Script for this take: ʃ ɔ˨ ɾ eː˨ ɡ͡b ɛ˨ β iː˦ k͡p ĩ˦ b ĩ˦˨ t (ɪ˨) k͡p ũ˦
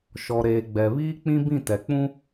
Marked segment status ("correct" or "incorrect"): incorrect